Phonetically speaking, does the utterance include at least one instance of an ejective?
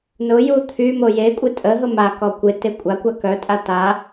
yes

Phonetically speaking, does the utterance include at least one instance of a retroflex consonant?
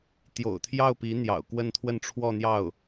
yes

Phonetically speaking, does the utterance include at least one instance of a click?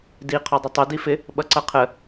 yes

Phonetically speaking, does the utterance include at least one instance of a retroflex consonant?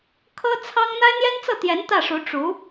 yes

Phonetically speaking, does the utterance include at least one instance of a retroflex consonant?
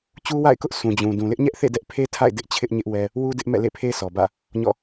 no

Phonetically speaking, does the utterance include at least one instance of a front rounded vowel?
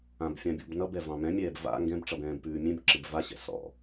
no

